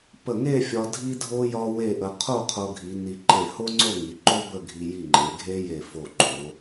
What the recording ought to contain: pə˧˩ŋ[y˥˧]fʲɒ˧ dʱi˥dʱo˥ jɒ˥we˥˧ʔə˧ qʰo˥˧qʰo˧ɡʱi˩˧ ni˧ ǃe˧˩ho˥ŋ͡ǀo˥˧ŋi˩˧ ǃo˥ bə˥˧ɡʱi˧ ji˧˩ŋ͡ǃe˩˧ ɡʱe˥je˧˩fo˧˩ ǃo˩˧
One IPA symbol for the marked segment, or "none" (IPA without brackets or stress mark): e˥˧